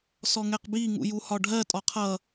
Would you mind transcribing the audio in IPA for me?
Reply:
s ɔ ŋ ɛ q b i ŋ ṵ j u h ɒ ɖʱ ɜ tʼ ɒ qʰ ʌ

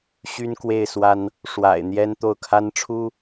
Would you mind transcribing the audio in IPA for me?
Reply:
ɕ y˥ n k w e˥˩ ɪ̯ s w a˥ n | ʂ w a̰˨˩ ɪ̯ n̪ j ɛ˥ n t̪ o˥˩ ʊ̯ kʰ a˥ n ʈ͡ʂʰ u˥

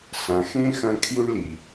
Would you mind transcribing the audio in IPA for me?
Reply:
s ã˨ x ẽ˥ x ɐ̃˦ kʰ j u˥ ɳ l i˩

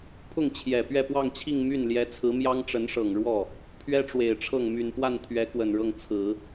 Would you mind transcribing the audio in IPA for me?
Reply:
pʰ ʊ˥˩ ŋ t͡ɕʰ j ɛ˨˩ p ɥ ɛ˥˧ p w ɑ˥˧ ŋ t͡ɕʰ i˥˧ ŋ m y˥˩ n l j ɛ˧˥ t͡sʰ ɹ̩˧˥ m j ɑ˥ ŋ ʈ͡ʂ ə˧˥ n ʂ ɤ˨˩ ŋ ɻ w ɔ˥˩ | pʰ ɥ ɛ˥ ʈ͡ʂ w e˨˩ ɪ̯ ʈ͡ʂʰ ɤ˥˩ ŋ m y˨˩ n p w a˥˩ n t̪ʰ ɥ ɛ˧˥ k w ə˨˩ n ɻ ɤ˥˩ ŋ t͡sʰ ɹ̩˨˩˦

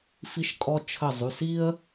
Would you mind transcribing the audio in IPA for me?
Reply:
f i˧ ʃ kʼ ɔ˧ t͡ʃʰ ə˧˩ zˤ y˩˧˩ s i˥ ə̯

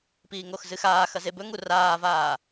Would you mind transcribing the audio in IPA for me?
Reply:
p iː ŋ o x z ɨ x aː x ɐ z e b ɵ ŋ u r aː v aː

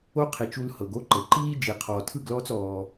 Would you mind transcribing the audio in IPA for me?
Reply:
o˦ qʰ i˨ t͡ʃ u˧ l h ɤ˨ ɡ o˦ ǃ ɤ˨ ǃ iː˦ d͡ʒ i˨ qʰ ɔː˨ tʰ ɯ˦˨ ɡ l ɔː˦ t͡s ɔː˦

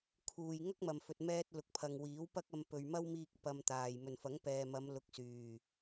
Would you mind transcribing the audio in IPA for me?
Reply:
kʰ uː˨ j ŋ ɐ˥ k̚ m ɐ˨ m f ɵ˨ t̚ m ɛː˧ t̚ l ʊ˨ k̚ pʰ ɐ˨ ŋ w iː˨˥ w p ɐ˥ k̚ ɐ˧ m p ɵ˨ ɥ m ɐ˥ w m iː˧ k̚ p ɐ˧ m t̪ aː˨ j m ɵ˨˩ n f ɐ˨˥ ŋ p ɛː˨ m ɐ˨˧ m l ʊ˨ k̚ s yː˨˩

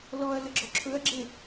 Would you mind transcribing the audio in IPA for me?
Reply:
l ɔ ɐ̯ l ə ɡ͡ǁ ɔ ǁʰ ɵ ɐ̯ ɡ͡ǁ e

